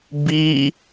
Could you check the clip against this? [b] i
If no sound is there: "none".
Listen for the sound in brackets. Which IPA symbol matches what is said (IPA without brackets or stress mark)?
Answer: b